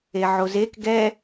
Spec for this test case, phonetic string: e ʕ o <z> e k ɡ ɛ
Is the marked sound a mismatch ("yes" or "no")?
no